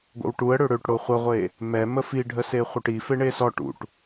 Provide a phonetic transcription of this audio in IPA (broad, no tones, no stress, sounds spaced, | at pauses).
ɡʷ ə̰ w ʈ u ə̯ ɽ ø ɽ ø ʈ ɽ o χʷ ə ʁʷ e | m ɛ m ə f i ɖʱ ə s e χʷ œ ʈ i f e ɳ e s ɔ ʈ ṵ ʈ